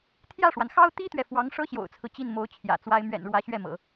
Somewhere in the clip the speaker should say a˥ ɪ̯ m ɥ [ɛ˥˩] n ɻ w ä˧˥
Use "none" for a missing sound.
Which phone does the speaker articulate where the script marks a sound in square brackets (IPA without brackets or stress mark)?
ɛ̰˨˩